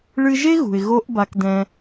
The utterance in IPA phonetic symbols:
ɭ ɨ˧ ʒ e˥ ɣ ṳ˩ ɪ̯ ɣ o˧ ʔ b a˧ k d ɛ̃˧

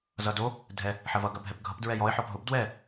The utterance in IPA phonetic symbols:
z ʌ d o | dʱ ɛ | ħ ɐ v ʌ ɡ ɐ bʱ ɛ p ɡʱ ʌ p d ɹ ɛ j ɔ ɪ̯ ħ ɔ p ɦ ʊ b d w ɛ

